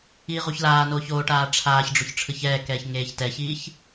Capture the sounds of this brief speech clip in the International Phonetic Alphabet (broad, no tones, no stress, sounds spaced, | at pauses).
iː ʁ u ç l aː n oː ç oː ʈ aː ʈ͡ʂʰ aː ç ɖ͡ʐ o ç ʈ͡ʂʰ ɯ ç ɛː k ɛː ç ŋ eː ç t ɛ ç iː ç